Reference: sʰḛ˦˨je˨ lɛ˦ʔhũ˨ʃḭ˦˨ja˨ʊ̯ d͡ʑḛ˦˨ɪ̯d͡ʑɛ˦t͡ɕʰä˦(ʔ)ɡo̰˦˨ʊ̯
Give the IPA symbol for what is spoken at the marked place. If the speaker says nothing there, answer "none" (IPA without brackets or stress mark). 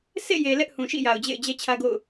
none